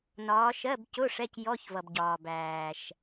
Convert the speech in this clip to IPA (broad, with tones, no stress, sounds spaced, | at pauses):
n ɒː˨˦ ʃ ɜ˧˥˧ b c ʊ˧˥˧ ʂ ɛ˧˥˧ c j ɔ˧˥˧ ç v ʌ˩ b ɟ ɒː˩ b æː˩ ʃ